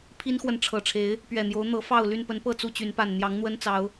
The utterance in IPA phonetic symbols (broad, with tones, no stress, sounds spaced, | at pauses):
pʰ i˦ n x w ə˨ n ʈ͡ʂʰ ɤ˨˩ ʈ͡ʂʰ e˨˦ ɪ̯ | p ɥ ɛ˨˩ n̪ j o˨˦ ʊ̯ n̪ ɤ˨˦ f ɑ˥˨ ʊ̯ l y˥˨ n p ə˨˦ n p ɤ˥˨ t͡s u˥˨ t͡ɕ y˨˦ n p a˨˩ n n̪ j ɑ˨˦ ŋ n̪ w ə˦ n t͡s ɑ˨˦ ʊ̯